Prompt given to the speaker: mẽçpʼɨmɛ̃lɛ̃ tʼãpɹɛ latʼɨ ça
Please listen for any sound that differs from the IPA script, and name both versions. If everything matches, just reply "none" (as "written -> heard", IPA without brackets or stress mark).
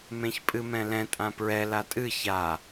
none